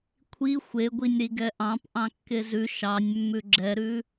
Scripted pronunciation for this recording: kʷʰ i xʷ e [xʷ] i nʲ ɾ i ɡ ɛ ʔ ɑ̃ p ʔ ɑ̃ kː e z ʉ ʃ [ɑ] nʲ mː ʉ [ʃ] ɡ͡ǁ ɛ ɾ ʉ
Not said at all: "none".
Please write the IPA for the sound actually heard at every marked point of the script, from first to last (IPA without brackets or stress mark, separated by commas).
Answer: ɡʷ, ɑ, none